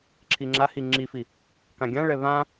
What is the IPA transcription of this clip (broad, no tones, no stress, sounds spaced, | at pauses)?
ǁʰ i ŋ͡ǁ a h i ŋ͡ǁ i f i | k ã ɡʲ ã ɭ ɛ β ã